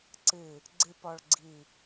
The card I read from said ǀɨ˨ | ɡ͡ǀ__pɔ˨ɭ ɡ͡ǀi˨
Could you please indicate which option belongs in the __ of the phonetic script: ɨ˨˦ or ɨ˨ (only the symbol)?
ɨ˨